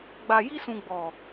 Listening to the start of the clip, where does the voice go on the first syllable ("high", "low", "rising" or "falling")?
low